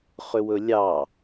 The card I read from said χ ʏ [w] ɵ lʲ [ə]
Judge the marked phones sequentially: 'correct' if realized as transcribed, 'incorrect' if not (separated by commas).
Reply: correct, incorrect